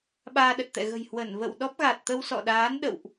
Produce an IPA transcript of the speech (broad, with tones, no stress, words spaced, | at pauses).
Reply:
ɓaː˧ɗə˨˩t̚t̪ɛ̰˧˨ ɣə̤˨˩j hwə˧˩nvə̰˧˨wɗɔ˦˥p̚ ɣa˨˩t̚t̪ə˧wsɔ̰˧˨ɗaː˨˦n ɗə̰˧˨wʔ